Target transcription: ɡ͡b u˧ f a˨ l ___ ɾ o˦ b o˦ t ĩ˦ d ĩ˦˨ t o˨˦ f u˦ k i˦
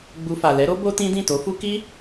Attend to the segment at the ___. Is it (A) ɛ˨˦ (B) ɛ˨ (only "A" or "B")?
A